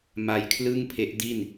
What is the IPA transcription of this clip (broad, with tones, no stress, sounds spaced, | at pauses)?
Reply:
m a˧ j kʰ l ɯ˥˩ ŋ pʰ e˦˥ ʔ d i˥˩ n